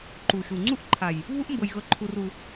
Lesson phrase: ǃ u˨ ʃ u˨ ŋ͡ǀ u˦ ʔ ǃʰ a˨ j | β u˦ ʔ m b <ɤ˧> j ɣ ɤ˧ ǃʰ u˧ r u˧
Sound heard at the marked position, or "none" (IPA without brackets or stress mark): ɤ˧